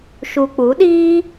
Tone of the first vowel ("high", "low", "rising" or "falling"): low